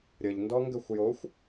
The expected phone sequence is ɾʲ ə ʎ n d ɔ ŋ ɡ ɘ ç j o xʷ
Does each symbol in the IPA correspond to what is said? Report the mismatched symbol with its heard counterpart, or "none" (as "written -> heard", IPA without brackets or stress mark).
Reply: ç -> xʷ